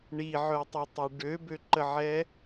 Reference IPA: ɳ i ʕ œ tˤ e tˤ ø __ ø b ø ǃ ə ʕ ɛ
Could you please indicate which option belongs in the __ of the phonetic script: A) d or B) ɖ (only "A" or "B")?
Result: B